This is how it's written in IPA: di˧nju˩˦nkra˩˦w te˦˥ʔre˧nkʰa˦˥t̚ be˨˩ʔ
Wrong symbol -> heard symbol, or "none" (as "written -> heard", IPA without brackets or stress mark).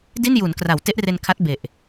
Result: i˧ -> i˥˩